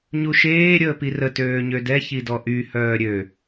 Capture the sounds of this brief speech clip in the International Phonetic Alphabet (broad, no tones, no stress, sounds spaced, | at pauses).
ɲ u ʃ eː ɾʲ əː p i r ə t øː ɲ ø d ɛ ç i d ɔ ʔ y h œː ɾʲ ø